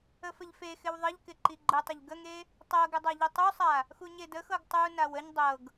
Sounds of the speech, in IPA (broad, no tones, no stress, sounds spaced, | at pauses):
ə f ə ʎ f e x ɪ w ðˤ ə ʎ k ɪ ǃ i ɡ͡ǃ ə tˤ ɪ ʎ ɡ ə ŋ e | tˤ ɤ ɡ ɪ dˤ a ʎ i tˤ u sˤ a | x u ɲ e d ə x ɤ ɡ tˤ u n a w ə ɲ dˤ ɤ ɡ